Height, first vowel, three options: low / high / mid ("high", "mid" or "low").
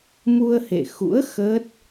high